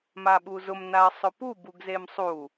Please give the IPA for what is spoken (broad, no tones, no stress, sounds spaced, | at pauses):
m a ɓ u z ʊ m n a ɐ̯ sˤ ʊ p u b u ɡ z e m sˤ u